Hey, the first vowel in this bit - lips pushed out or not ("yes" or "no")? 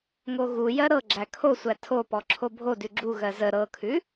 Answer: yes